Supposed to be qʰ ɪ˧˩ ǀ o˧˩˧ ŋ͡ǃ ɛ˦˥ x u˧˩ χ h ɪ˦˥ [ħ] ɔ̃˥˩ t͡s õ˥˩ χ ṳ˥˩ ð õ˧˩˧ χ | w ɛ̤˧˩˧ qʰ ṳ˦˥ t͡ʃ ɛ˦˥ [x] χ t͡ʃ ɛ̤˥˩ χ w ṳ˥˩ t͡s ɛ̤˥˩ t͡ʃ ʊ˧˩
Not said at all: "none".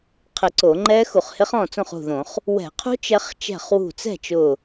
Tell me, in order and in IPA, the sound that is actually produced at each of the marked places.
χ, none

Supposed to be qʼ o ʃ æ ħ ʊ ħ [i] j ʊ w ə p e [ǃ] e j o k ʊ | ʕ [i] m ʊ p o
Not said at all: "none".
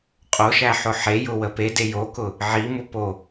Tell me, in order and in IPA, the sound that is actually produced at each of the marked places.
e, d, i

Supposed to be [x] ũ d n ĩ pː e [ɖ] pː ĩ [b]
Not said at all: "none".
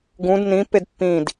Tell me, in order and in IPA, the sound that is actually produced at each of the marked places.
ɡ, d, d

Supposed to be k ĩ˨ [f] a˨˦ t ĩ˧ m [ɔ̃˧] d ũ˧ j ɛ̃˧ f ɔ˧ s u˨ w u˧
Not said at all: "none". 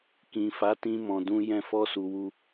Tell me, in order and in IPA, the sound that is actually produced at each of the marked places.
f, ɔ̃˨

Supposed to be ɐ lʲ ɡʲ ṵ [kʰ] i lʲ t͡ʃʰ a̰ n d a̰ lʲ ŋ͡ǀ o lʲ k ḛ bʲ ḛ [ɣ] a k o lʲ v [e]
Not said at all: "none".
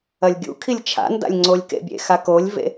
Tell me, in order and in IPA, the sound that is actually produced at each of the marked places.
kʰ, x, ḛ

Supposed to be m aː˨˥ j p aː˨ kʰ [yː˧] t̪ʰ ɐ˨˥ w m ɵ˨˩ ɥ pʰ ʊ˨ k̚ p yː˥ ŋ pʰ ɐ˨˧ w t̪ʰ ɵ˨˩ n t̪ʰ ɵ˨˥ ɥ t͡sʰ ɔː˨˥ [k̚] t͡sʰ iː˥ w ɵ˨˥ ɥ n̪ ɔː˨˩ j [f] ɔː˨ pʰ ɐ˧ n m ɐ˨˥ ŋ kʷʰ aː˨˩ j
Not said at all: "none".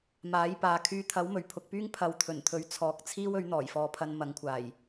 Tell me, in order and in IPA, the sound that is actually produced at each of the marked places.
yː˧, k̚, f

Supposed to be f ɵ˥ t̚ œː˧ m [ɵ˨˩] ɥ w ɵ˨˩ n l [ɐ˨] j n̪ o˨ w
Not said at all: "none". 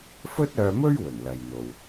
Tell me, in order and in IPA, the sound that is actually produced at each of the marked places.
ɵ˥, ɐ˨

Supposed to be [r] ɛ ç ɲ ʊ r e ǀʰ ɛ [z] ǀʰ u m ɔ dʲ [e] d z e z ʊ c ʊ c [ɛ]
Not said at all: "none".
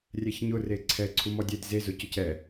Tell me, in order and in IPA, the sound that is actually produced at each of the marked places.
rʲ, none, e, ɛ

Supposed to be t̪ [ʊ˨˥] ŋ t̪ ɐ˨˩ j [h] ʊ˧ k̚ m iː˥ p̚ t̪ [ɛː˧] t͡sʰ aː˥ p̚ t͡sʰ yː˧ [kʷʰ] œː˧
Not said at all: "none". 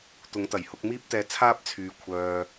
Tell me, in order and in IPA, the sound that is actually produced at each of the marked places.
ʊ˨˧, h, ɛː˧, kʷʰ

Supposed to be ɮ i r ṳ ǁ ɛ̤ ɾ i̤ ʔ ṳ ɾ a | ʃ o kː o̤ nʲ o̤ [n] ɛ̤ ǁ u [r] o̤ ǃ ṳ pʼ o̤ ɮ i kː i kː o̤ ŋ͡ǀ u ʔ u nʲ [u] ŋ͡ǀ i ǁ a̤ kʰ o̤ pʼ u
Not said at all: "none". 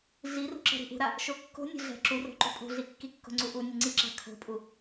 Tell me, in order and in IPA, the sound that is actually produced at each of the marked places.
ɮ, r, u

